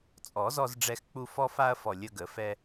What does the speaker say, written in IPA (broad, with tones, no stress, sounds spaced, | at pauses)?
t͡sʼ ɔ˨˩˦ z ɔ˧ z ɖ͡ʐ ɛ˧ x k͡p u˧ f ɔ˧ f a˧ ɐ̯ f ɔ˨˩ lʲ ə˧ ɡ ə˨˩˦ f ɛ˧